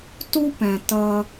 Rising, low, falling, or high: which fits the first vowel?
high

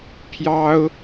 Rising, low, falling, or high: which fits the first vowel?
high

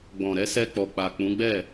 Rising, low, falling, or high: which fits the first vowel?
low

